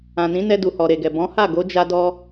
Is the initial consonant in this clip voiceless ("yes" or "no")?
no